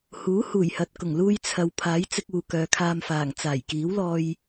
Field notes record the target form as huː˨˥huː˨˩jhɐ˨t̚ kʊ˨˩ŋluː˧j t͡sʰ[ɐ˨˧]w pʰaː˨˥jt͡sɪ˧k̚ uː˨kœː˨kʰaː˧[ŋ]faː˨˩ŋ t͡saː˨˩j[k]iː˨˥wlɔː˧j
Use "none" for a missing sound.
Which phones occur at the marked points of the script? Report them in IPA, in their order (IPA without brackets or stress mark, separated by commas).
ɐ˨, m, k